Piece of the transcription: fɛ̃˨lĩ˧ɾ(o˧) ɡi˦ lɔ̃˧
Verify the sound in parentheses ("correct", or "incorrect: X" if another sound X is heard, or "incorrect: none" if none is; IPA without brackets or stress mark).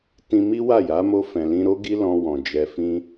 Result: incorrect: o˦